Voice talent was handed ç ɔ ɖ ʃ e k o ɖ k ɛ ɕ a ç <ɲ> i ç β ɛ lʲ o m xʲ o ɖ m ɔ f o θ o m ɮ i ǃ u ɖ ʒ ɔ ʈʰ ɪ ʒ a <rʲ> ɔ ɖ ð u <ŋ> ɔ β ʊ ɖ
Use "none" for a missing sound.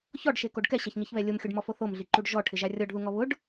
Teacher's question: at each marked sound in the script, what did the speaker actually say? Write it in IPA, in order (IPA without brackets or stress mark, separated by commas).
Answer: ɲ, rʲ, ŋ